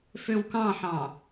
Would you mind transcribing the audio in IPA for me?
føwkɑ̃ħɑ̃

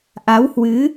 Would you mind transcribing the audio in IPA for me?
ʔa˨˦whwɨ˨˦

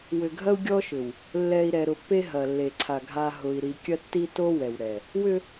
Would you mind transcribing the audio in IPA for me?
wʏ˨ɡʱɐ˦u̯ ɡʲɔ˦ʃʏ˨w | lːɛ˨i̯ ɾɛ˨ɾʊ˨pːe˦ ɦɐ˨lːe˨ǀʰa˨ ɡʱa˨ ɦʊ˨i̯ ɾi˨kʲɐ˦tːi˦to˦ wɛ˨w ɾɛ˨ | wʏ˦

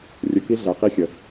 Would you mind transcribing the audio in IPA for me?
rʲə˧ki˦ ɮæ˧qi˦xʲə˧

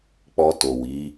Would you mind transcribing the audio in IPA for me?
k͡pɔ˧to˨wi˨˦

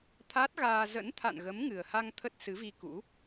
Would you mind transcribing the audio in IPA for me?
t̪ʰa˦˥t̚ ɣaː˧ zə̰˧˥n t̪ʰa̰˧˨nɣə˨˦m ŋɨ˨˩ə̯ha˧ŋ t̪ʰə˦˥t̚sɨ˨˦vi˧ kṵ˧˥

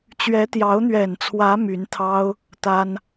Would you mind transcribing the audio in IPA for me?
t͡ɕɥɛ˧˥t̪jɑ˧˥ʊ̯n̪ɥɛ˨˩nt͡sʰwä˧˥ my˧˥nt̪ʰɑ˥ʊ̯ | t̪a˥n

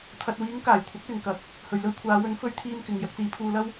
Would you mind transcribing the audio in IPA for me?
t̪ʰɐ˨t̚wiː˨˥ŋkaː˨˩j kʷʰɐ˨˥k̚lɪ˨ŋkɐ˨˥k̚ | hɵ˨ɥlɵ˧ɥkʷʰaː˨˧wɵ˨˥n fɵ˥ɥt̪ʰiː˥mkɪ˧ŋ jɐ˧k̚t͡siː˨˧pʰuː˧lɐ˥w

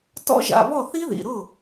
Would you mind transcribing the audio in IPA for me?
tɔ̰˦˥ʒa̰˩˧˩βɔ˥˩ θi˦˥ðḭ˩˧˩ɾʊ˥˩

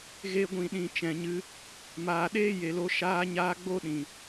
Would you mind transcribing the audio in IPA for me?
ɣe˧ɡʷĩ˨ɗĩ˨ t͡ʃɛ̃˨ɲɨ˧ | maː˨ɗeː˦je˨lo˧ ʃaː˦ɲaː˦ ɡ͡bo˦ɗĩ˨

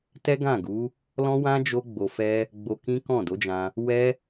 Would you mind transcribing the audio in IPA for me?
tɛ˦ɡã˦˨ɡu˨˦ | lɔ̃˦wã˦ d͡ʒo˦ɡ͡bo˧fɛ˦ | ɡ͡bo˧kĩ˦kɔ̃˦˨ do˨˦d͡ʒã˧ | wɛ˦

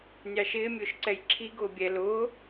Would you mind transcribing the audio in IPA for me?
nʲɑʃɪː mʲʊːʃǀɛjǁʰi ɡʊːbʲɛ lʊː

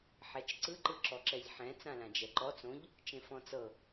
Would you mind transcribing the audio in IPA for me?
ħɛt͡ʃǀɯ ǃɯǁɔǁɛʎħɛ̃ t͡sãlãd͡ʒɛǃɔ t͡sõʎ | t͡ʃẽfɔ̃t͡sɤ

